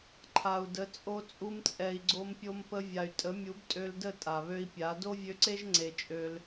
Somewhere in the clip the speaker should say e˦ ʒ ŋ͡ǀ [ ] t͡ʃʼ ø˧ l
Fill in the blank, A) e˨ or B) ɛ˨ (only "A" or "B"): A